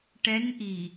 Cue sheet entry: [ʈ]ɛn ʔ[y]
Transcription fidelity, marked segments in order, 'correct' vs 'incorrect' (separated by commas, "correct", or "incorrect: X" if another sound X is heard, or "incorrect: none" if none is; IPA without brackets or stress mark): correct, incorrect: i